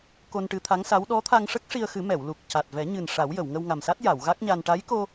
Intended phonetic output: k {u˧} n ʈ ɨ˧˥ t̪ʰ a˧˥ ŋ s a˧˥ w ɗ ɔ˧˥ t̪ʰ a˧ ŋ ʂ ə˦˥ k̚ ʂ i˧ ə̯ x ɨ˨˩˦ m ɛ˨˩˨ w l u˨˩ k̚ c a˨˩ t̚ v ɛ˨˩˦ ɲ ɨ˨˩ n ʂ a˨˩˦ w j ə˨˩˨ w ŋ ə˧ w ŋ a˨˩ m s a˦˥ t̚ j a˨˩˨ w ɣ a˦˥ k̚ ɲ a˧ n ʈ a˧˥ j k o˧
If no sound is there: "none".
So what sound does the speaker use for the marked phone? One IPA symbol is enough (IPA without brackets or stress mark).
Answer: o˧